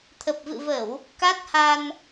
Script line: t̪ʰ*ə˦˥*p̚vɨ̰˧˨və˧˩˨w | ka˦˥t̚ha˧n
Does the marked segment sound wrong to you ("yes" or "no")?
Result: yes